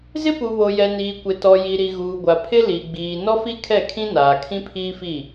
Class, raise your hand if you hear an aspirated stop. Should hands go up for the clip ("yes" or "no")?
yes